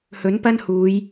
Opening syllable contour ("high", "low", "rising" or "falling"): rising